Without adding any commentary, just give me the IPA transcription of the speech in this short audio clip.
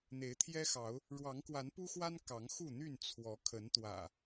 n̪ e˨˦ ɪ̯ t̪ʰ j ɛ˦ x ɑ˨˦ ʊ̯ | ɻ w ɑ˨˦ ŋ k w a˨˦ n p u˦ x w a˦ n k ɑ˨˦ ŋ x u˥˨ n̪ y˥˨ n t͡sʰ w ɔ˨˦ kʰ ə˨˦ n t̪ w ä̰˨˩

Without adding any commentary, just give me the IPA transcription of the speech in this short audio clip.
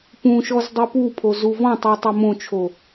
p ũ ʃ ɔ z dˤ ɯ p u pʰ o z u v ɔ̃ tˤ u tˤ o m õ t͡ʃʰ o

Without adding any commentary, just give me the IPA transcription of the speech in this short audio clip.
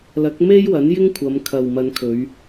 l ɐ˨˥ k̚ m e˥ j w ɐ˨˥ n j ɪ˥ ŋ kʷʰ ɐ˨˧ m kʰ ɐ˨ w m ɐ˨˧ n kʰ ɵ˨˧ ɥ

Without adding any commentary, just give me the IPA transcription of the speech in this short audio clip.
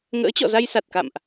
ŋ ə̰ː˧˥ t͡ɕ ɔ̰˧˨ z a˧ j s a˨˩ t̚ k a̰˧˨ m ʔ

